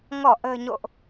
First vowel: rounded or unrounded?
rounded